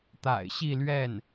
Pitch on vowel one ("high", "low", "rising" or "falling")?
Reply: low